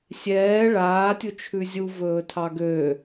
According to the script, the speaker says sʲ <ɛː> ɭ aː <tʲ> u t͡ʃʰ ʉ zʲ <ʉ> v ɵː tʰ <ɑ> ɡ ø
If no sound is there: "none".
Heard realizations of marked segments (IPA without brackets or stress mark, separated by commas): ɛː, tʲ, u, ɑ